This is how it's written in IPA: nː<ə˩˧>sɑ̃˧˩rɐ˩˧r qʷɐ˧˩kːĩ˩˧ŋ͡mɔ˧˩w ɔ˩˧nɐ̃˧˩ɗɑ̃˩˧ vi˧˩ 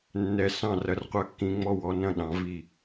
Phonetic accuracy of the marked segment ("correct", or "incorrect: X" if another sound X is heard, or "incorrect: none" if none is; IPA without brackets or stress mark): incorrect: ɛ˩˧